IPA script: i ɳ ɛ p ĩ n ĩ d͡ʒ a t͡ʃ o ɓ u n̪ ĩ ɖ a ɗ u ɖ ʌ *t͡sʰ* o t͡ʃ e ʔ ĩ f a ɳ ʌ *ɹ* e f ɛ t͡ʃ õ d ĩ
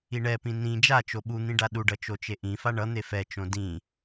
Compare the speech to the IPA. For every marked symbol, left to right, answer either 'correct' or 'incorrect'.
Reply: incorrect: t͡ʃ, incorrect: n̪

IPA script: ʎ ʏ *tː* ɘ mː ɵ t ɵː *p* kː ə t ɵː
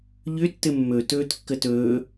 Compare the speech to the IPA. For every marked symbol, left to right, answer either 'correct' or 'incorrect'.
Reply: correct, incorrect: t

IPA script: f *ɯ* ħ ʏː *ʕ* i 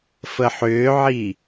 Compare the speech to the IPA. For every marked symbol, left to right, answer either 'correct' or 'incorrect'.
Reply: incorrect: ə, correct

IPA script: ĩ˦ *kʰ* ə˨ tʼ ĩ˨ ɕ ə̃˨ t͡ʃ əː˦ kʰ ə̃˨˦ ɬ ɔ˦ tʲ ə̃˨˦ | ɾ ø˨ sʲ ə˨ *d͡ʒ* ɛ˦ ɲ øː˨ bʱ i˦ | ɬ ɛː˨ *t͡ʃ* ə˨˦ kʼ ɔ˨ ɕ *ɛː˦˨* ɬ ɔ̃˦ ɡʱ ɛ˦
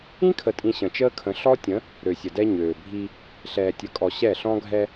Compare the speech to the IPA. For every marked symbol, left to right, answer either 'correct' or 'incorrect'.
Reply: correct, incorrect: d, incorrect: tʲ, incorrect: ɛ˦˨

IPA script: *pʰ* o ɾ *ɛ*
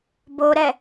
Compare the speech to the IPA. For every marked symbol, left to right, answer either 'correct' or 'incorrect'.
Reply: incorrect: b, correct

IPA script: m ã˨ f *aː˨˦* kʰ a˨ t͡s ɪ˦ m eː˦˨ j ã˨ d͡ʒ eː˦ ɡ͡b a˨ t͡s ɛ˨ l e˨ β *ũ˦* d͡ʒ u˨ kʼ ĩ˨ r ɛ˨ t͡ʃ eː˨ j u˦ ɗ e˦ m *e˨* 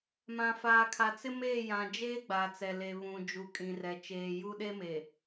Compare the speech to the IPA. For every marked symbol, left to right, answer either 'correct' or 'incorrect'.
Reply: incorrect: aː˨, incorrect: ũ˨, correct

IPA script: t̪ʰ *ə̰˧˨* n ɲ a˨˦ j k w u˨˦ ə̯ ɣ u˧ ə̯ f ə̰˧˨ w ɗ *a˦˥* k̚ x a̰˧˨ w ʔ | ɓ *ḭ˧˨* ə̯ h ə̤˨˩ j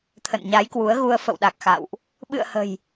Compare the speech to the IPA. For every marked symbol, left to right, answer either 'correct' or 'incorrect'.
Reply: correct, incorrect: a˨˩, incorrect: ɨ̰˧˨

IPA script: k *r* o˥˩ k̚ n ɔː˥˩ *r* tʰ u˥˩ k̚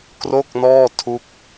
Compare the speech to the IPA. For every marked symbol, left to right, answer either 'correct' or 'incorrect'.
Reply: correct, incorrect: none

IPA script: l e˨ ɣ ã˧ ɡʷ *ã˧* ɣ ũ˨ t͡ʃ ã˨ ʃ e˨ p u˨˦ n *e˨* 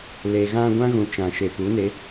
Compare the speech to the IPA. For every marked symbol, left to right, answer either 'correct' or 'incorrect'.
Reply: incorrect: ã˦, incorrect: e˨˦

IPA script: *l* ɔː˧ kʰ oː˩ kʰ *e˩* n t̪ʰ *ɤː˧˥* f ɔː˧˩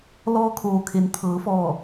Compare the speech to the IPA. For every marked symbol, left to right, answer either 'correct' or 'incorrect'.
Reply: correct, correct, incorrect: ɤː˩˧

